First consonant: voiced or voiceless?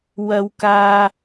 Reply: voiced